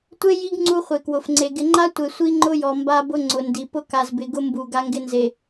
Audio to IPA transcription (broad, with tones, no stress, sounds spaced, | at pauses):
tʷ e˦ j i˦ ɡ ŋ͡ǀ u˦ χʷ e˨ k w ʊ˨ f ŋ͡ǀ e˨ ɡ ɪ˨ ŋ͡ǃ a˦ tʷ e˨ sʷ i˦ ŋ͡ǃ ʊ˦ j ɔ˨ m b a˦ b ʊ˦ ŋ͡ǀ ʊ˨ n d i˨ p ʊ˦ k a˨ z b ɪ˨ ɡ ʊ˦ m b u˨ ɡ a˦ ŋ ɡ ɪ˦ n z e˨